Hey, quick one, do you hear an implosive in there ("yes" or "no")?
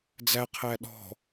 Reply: yes